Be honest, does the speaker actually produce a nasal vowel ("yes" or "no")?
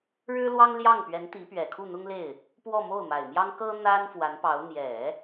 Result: no